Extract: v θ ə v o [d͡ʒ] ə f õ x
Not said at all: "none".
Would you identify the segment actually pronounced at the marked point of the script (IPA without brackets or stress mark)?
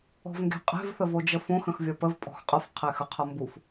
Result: d͡ʒ